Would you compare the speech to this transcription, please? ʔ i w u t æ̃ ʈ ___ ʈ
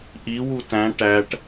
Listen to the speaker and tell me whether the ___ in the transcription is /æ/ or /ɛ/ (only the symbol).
æ